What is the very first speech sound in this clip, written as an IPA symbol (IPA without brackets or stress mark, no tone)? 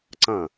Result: ǀ